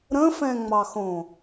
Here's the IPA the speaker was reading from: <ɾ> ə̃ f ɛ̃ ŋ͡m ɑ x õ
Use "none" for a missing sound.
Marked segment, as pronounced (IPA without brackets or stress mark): ɾ